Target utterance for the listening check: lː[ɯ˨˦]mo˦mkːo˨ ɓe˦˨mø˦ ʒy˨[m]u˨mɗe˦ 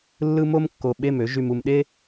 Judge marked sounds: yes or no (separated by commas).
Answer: no, yes